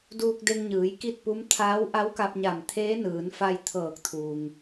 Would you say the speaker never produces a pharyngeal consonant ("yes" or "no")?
yes